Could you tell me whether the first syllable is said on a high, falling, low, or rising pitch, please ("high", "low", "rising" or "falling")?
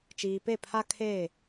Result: low